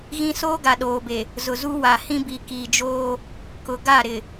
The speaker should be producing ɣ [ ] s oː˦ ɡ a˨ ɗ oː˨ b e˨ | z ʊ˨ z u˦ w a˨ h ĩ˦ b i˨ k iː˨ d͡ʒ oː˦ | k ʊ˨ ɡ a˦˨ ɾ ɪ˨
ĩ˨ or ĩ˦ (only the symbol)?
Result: ĩ˦